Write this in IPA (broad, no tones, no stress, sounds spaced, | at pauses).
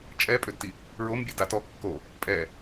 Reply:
t͡ʃʼ ɛ pʼ ø d t i | ɹ o m bʲ e d a t ɔ kː o | pʼ ɛ